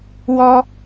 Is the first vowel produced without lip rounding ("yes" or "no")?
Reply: no